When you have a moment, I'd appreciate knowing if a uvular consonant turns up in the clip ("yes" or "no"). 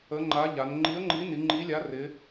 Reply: no